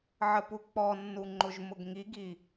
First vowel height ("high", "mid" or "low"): mid